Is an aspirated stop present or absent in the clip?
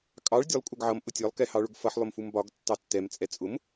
absent